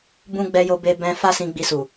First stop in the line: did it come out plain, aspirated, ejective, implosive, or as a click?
plain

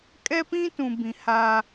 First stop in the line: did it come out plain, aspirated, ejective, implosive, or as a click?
ejective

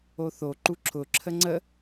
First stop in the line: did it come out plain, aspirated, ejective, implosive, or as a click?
click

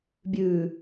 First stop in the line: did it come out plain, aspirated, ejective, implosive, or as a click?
plain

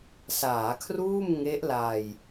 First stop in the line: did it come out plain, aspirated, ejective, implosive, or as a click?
aspirated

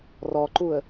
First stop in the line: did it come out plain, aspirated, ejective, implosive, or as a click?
click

